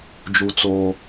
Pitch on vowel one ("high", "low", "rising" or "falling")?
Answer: high